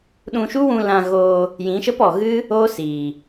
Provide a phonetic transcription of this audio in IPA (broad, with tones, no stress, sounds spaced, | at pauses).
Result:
ɗ ũ˧ ʃ u˦ w ũ˧ l ã˧ ɣ oː˧ | j ĩ˨˦ ʃ ə˦ p ɔ˨ ɣ ɨ˦ | oː˦ s iː˨